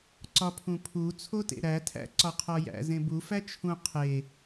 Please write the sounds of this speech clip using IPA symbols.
ǀ ɒ pʰ ũ pʰ u t͡sʰ o t ḛ ɾ æ tʰ æ̰ ǀ ɒ qʰ ɒ j æ̰ z ẽ b u f æ t͡ʃʰ ũ qʰ e

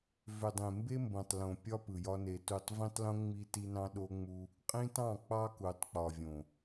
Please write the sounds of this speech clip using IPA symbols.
v ø˨ dˤ ẽ˨ m b e˦ m b õ˨ tˤ l õ˨ pʲ ɒ˦ p ɯ˨ j ɒ˦ n e˨ t u˦˨ tˤ v ĩ˦ tˤ l õ˦ ŋ͡m i˦ t i˦ n ɑ̃˦ ɗ o˦ ŋ͡m u˦ | qʼ ĩ˦ t ɑ̃˦˨ k͡p ɑ˦ k u˨ tˤ k͡p ɒ˨ vʲ õ˨

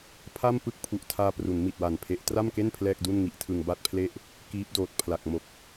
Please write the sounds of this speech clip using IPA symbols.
pʰ a˥˩ m p ɯ˥˩ k̚ pʰ u˨˩ ʔ tʰ aː˧ p r u˩˦ n m i˨˩ t̚ w a˨˩ n pʰ e˦˥ ʔ t r a˥˩ m k e˥˩ n pʰ l ɛː˥˩ k̚ d u˥˩ n ŋ i˦˥ ʔ tʰ ɯ˧ ŋ b a˥˩ t̚ pʰ l e˥˩ ʔ | k iː˦˥ p̚ d oː˨˩ t̚ pʰ l a˨˩ k̚ m o˨˩ k̚

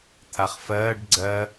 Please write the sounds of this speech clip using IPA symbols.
t̪ʰ a χ f ɜː ɖ ɡ͡ǀ ɜ

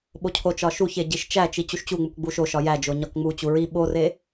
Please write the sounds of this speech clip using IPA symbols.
ɓ o cʰ o t͡ʃ ɒ ʃ u ç e ɟ i ʃ t͡ʃ æ t͡ʃ i t͡ɕ u ʃ t͡ɕ u ŋ͡m u k ɡ͡b u ʃ o ʃ ɒ j æ d͡ʒ o ɲ ɒ k ŋ͡m u t͡ɕ u ɹ i ɓ o r e

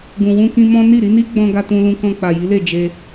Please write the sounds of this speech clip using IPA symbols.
ɡ ũ˨ w ũ˧ k ĩ˧ m ɔ̃˦ n i˦˨ ɾ i˨˦ n i˦ ɡ͡b ɔ̃˧ ɡ a˧ t ũ˧ l ũ˧ k ɔ̃˧ k͡p a˨ j i˨˦ l e˦˨ d͡ʒ e˧

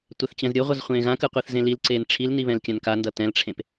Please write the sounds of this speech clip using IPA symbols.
tʷ ɛ θ t͡ɕ ɛ̃ z ɾʲ o ʁʷ ʌ z χʷ ẽː ɣ ã k ɯ qʷ i θ z ẽ l i l ǀ eː n ʈ͡ʂʰ i l n i β ɛ̃ l kʲ ã n k a n d ʌ t ɛ̃ l ʈ͡ʂʰ ẽ p

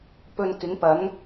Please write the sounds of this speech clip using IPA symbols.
p ɵ˧ n k ɪ˨˥ ŋ p ɐ˨˥ ŋ

